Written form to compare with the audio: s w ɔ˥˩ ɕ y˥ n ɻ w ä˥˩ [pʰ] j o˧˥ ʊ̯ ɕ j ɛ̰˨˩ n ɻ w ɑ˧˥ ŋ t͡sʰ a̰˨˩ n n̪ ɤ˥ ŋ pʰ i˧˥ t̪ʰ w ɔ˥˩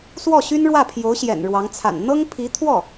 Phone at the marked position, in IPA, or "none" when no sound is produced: pʰ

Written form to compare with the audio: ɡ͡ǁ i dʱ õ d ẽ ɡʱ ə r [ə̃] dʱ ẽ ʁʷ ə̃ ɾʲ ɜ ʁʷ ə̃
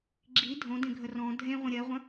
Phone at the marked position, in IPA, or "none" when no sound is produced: ɔ̃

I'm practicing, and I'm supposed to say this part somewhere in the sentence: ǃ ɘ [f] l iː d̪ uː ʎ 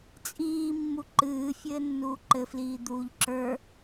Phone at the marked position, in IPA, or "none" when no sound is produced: f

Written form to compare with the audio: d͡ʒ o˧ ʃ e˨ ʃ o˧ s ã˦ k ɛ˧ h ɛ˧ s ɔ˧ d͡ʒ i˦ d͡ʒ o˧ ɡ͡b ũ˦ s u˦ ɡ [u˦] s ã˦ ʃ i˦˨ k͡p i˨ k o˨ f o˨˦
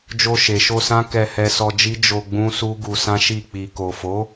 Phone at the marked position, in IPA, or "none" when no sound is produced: u˧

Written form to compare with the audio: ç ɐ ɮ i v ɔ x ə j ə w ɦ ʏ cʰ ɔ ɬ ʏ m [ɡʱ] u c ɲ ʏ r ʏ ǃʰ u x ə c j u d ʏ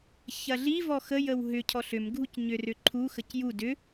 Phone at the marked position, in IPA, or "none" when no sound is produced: ɡʱ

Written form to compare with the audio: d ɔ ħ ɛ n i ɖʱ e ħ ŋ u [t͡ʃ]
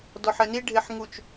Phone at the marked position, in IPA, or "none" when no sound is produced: t͡ʃ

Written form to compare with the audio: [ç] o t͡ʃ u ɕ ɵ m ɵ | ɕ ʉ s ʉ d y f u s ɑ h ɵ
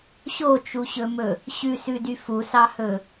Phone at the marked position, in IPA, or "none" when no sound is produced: ɕ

